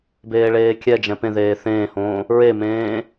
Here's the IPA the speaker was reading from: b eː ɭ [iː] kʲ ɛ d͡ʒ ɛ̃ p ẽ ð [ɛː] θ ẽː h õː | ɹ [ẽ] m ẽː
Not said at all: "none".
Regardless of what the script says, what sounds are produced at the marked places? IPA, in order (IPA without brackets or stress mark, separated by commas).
eː, eː, e